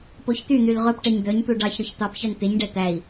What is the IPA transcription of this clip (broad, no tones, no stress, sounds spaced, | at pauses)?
p o ç t̪ y n̪ y l ʁ ɵ p ʈ ɛ ɲ d̪ œ ɲ t̪ u ɖ ɑ ç ɾ ɵ ç t̪ ɑ p ç œ n t̪ e ɲ ɖ ɛ t̪ æ i̯